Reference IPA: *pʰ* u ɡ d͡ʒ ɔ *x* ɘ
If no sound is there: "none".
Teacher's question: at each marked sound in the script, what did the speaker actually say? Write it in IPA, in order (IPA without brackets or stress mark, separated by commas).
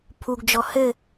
pʰ, h